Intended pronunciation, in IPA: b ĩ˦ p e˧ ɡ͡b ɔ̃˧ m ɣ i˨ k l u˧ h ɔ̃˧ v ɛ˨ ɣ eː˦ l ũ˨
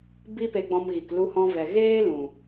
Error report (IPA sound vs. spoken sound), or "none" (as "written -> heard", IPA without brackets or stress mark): ĩ˦ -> i˦